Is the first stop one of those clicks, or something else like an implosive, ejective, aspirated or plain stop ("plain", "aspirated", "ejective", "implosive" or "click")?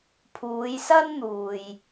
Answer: aspirated